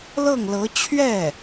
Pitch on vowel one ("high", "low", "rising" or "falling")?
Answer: falling